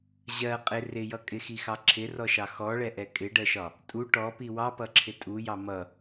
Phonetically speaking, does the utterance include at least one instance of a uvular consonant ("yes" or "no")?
yes